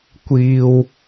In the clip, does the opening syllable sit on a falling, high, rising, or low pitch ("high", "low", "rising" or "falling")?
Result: low